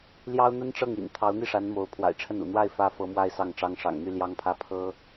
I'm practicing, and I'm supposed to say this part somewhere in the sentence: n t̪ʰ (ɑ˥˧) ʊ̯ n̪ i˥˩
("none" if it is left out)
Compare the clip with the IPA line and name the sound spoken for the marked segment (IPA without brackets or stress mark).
ɑ˧˥